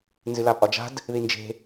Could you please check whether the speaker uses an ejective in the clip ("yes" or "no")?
yes